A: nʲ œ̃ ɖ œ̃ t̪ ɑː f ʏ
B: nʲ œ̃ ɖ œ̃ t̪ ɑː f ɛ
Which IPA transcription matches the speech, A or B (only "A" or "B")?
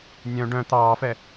B